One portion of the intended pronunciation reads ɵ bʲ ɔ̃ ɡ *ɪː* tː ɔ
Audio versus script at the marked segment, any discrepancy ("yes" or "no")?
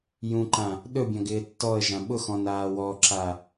no